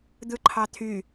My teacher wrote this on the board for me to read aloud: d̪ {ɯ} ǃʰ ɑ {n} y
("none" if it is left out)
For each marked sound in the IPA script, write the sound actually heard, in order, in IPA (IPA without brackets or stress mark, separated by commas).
ɯ, t̪ʰ